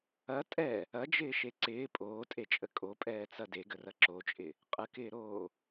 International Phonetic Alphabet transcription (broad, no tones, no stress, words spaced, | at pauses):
ɐ tʼɛ | ɐd͡ʒɪːʃe ǀɪː pʼoːtʼet͡ʃʼə kʼopʼɛːt͡sɐ deɡərɐ ǁot͡ʃʼɪ | qʼəkɪːɾoː